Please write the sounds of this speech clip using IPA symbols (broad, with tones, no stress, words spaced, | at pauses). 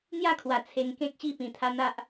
n̪ja˥˧kʰwa˨˩ t͡sʰe˧ŋkẽ˦k̚ɕi˥˧ pĩ˨˩t̪ʰa˧ n̪a˦ʔ